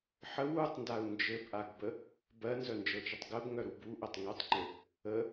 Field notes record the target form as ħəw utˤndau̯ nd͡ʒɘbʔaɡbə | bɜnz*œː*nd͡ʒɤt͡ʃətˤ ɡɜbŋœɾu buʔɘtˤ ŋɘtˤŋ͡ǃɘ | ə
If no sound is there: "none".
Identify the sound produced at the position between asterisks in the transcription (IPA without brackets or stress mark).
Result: œ